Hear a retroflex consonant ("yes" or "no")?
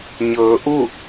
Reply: no